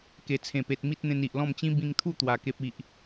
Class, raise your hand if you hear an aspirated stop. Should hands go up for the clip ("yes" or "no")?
yes